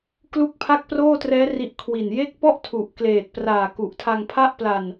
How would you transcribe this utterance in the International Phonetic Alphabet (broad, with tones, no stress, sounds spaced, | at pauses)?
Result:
k l u˥˩ k̚ pʰ a˥˩ k̚ p r oː˥˩ t r ɛː˦˥ r i˥˩ ʔ kʰ w i˨˩ n j e˦˥ k̚ p ɔ˥˩ ʔ tʰ u˨˩ ʔ k l eː˨˩ t̚ p r aː˨˩ k u˨˩ ʔ tʰ a˧ ŋ pʰ a˥˩ ʔ p l a˨˩ n